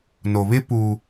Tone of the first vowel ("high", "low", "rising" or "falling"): low